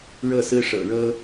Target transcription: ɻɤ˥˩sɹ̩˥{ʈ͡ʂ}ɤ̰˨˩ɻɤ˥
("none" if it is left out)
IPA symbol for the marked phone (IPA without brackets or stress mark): ʂ